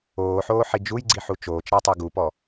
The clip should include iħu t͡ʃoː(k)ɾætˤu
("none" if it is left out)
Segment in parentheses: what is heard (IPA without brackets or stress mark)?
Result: t͡ʃ